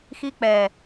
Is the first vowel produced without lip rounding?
yes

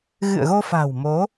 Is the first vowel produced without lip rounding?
yes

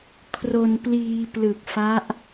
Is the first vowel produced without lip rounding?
no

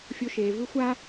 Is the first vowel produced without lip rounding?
no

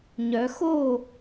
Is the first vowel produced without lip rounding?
no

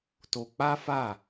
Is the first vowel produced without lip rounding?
no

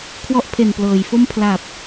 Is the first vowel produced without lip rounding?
no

